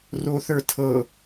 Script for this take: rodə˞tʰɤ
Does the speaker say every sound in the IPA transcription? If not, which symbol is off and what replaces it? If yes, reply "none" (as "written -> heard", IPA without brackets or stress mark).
d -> θ